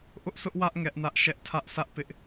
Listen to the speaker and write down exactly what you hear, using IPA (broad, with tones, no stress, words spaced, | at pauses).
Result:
ʔʊ˦ʔsʊ˦ʔwä˦ʔ ŋɛ˦ʔnä˦ʔ ʃɛ˦ʔ tʰä˦ʔsä˦ʔ pɪ˦ʔ